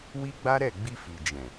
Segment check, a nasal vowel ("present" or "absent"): present